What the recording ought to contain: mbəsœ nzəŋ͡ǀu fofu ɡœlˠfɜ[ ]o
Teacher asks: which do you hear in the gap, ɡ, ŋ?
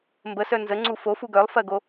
ɡ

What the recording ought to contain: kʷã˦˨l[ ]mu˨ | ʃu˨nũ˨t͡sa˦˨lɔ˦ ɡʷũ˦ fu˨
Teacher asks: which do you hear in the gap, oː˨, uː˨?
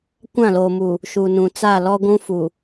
oː˨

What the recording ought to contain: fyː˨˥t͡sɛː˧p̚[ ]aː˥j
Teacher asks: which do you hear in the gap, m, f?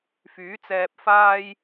f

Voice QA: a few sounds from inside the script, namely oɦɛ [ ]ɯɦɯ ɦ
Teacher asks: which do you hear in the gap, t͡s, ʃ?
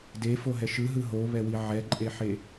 ʃ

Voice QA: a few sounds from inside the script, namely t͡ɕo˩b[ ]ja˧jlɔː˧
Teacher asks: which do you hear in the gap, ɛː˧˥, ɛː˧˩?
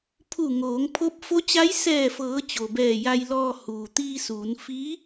ɛː˧˩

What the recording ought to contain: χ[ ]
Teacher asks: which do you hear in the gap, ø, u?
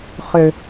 ø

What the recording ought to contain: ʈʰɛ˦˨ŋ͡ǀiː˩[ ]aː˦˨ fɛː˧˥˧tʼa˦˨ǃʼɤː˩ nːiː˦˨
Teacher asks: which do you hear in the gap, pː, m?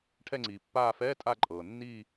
pː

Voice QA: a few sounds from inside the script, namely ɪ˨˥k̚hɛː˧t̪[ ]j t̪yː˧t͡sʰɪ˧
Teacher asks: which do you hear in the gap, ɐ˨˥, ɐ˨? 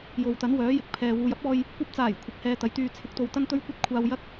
ɐ˨˥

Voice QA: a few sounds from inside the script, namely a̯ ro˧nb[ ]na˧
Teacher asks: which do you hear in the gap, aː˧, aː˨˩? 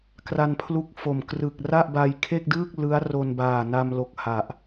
aː˨˩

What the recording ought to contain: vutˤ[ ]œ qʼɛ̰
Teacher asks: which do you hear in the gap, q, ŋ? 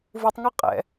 ŋ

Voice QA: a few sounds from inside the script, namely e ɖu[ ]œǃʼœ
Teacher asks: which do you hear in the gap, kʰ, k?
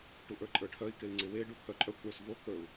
kʰ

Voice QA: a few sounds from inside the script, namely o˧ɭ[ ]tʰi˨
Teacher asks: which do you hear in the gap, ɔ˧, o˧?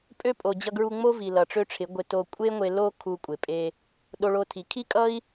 o˧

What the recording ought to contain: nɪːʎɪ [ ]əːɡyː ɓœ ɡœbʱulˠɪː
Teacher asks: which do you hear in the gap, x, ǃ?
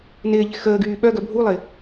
x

